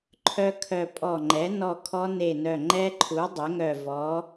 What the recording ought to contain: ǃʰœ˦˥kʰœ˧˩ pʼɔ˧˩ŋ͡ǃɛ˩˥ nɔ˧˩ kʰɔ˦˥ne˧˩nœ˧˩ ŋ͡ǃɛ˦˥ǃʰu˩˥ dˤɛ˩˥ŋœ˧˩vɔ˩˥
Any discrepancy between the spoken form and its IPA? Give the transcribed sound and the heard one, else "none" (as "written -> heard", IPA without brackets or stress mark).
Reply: none